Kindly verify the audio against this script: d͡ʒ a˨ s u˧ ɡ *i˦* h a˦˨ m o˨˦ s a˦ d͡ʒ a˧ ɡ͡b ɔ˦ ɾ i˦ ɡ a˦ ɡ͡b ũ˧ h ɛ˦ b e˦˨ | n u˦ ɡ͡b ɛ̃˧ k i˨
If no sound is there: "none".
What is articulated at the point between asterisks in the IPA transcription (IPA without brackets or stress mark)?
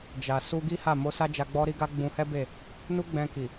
i˦